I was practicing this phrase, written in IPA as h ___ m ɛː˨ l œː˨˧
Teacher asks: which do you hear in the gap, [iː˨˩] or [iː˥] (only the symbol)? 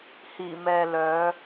iː˨˩